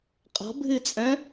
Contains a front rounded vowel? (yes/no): yes